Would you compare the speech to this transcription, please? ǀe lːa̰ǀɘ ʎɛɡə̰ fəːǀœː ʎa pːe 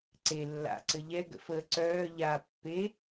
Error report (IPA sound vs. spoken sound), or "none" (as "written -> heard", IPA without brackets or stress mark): none